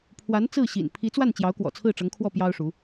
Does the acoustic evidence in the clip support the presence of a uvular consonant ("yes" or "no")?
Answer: no